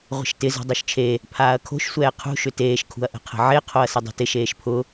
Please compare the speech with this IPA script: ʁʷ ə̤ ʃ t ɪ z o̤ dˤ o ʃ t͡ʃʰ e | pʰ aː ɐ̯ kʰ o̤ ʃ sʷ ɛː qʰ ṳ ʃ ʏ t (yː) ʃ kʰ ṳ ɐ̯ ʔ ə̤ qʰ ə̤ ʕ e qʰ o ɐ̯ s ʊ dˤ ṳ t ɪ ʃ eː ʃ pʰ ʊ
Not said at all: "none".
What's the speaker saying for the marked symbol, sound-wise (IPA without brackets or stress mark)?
eː